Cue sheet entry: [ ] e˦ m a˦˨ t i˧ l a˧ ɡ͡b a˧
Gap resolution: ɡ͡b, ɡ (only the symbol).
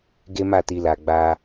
ɡ